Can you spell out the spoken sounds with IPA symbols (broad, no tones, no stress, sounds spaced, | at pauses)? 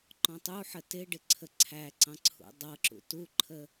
ǃ ɔ̃ tˤ u ħ ə t ɪ ɖ ɪ ǀʰ ə ǀʰ æ ǀ ɑ̃ ǀʰ ṵ dˤ ʌ ǁ ṵ t u ǃʰ ə